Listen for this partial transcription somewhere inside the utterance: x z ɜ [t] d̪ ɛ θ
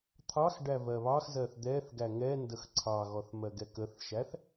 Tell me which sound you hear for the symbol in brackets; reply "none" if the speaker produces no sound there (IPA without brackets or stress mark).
θ